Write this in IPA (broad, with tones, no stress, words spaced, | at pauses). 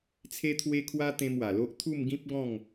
t͡sʰe˦t̪ʰwe˦kʰwa˦t̪ẽ˧m wa˨˩lo˦ʔ t̪ʰu˥˧mɡĩ˦p̚ɡɔ̃˥˧ŋ